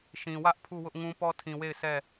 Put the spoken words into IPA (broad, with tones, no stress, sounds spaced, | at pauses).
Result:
ʃ ĩ˨ w ä˦ ʔ pʰ u˦˨ w ʊ˦ ʔ ŋ ũ˦ p ɔ˦ tʰ ĩ˨ w e˦˨ ɪ̯ s ɛ˦˨